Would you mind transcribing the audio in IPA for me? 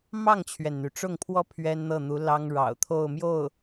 m ɑ˥˩ ŋ t͡ɕʰ ɥ ɛ˩ n n̪ y˩ ʈ͡ʂ ʊ˥˩ ŋ pʰ w ɔ˥ pʰ ɥ ɛ˥ n n̪ ɤ˥˩ n̪ u˧˥ l ɑ˥ ŋ ɻ ɑ̰˨˩ ʊ̯ t̪ʰ o˥˧ ʊ̯ m j o˥˩ ʊ̯

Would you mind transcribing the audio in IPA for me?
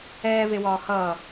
ɛː v e w ɒː h ʌː

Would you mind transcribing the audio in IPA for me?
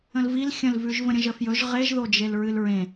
ə̃ l v i l xʲ ə̃ l v ʉ ʒ v ə̃ ɾʲ ə̃ ʒ ə f j ɵ ʒ ʁ e ʒ ð o d͡ʒ e l ɹ ɨ l ɹ ẽ

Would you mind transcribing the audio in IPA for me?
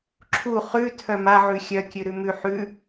ǁʰ u χ ʉ tʰ œ m a ʕ ʉ xʲ œ kʲ ʉ ɾ ʉ m ʉ ħ ʉ

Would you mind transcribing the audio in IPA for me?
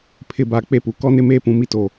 pʰ ɪ˨ b a˨ k͡p e˦ p u˨ k ɔ˦ n ɪ˦ m eː˦ p ũ˨ m i˦ t o˨

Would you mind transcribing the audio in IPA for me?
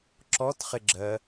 ǁ ɔ t χ ɪ ɡ͡ǁ ɜ

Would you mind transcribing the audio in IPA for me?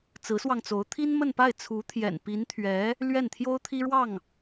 t͡s ɹ̩˧˥ s w ɑ˧ ŋ t͡s o˧˥ ʊ̯ t̪ʰ i˥ n m ə˥˧ n p a˥˩ ɪ̯ t͡sʰ u˧˥ t̪ʰ j ɛ̰˨˩ n p i˧˥ n t̪ʰ ɥ ɛ˧˥ | l ɥ ɛ˥˩ n t̪ʰ j o˥ ʊ̯ t̪ʰ i˥ ɻ w ɑ˥˩ ŋ

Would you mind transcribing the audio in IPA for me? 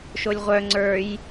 ʃ o lʲ ʁʷ œ ŋ͡ǀ ə˞ j

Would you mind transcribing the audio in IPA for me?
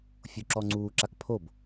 fʲ o ǁ ɔ ŋ͡ǀ uː ǁ a k pʰ o b

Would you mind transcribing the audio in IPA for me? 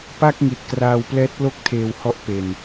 p a˥˩ k̚ ŋ i˨˩ t̚ k r aː˧ w p l ɛː˦˥ t̚ l o˥˩ k̚ tʰ eː˧ w h ɔ˦˥ ʔ p e˧ n

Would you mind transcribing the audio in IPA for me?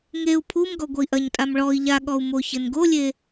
ŋ e u̯ pʰ u m ɡ ɔ ɡʷ ɐ i̯ ʔ ɐ ɲ tʼ a m ɭ ɔ i̯ ʎ a ɠ ɔ u̯ m o ç ɘ n ɡ o lʲ e

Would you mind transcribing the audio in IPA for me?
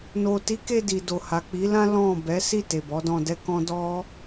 n o˨ t i˨˦ k e˧ d i˨ d o˨ h a˨ k͡p i˨˦ l ã˦ l ɔ̃˦˨ b ɛ˨˦ s i˦˨ t e˨ b ɔ˨˦ d ɔ̃˧ d ɛ˦ k ɔ̃˦ d ɔ˦

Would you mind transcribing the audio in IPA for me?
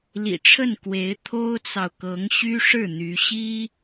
l ḭ˨˩ ʈ͡ʂʰ ə˥˩ n k w e˧˥ ɪ̯ t̪ʰ o˥ ʊ̯ t͡s ɑ˨ ʊ̯ k ɤ˧˥ ŋ ɕ y˥ ʂ ɻ̩˥˩ n̪ y˧˥ ɕ i˥

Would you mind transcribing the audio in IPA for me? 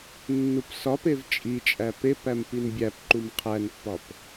nː u p s ɒ p e v t͡ʃʼ i t͡ʃʼ æ p e p æ m p i n bʲ æ p ǃ u m qʰ æ n pː ɒ p

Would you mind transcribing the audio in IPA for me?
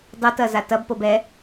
dˤ o t ɐ z a t ɐ b p o b ɛ

